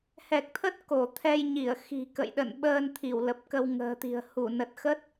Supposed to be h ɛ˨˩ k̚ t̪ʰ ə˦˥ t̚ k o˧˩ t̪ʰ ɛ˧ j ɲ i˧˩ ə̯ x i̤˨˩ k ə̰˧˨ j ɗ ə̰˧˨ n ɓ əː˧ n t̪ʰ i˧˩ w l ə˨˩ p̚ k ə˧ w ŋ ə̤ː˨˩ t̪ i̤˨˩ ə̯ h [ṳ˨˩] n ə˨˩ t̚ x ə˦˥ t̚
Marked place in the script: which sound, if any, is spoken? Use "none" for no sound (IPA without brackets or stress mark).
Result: u˧˩